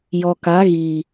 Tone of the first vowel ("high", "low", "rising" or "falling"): low